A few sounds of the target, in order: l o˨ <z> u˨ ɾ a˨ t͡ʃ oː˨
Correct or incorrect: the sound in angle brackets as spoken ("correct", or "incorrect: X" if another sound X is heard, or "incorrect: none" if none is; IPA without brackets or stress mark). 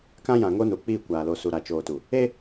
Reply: incorrect: s